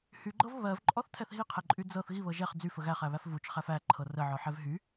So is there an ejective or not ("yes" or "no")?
yes